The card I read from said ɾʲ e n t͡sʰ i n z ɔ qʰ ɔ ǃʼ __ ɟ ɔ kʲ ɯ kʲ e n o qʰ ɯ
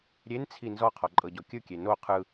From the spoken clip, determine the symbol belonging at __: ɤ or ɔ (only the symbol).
ɤ